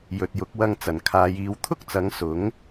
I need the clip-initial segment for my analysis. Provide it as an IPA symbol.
j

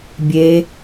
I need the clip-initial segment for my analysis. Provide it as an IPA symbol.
bʲ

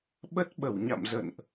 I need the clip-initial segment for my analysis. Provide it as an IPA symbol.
ɓ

